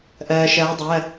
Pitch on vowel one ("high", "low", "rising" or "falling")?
low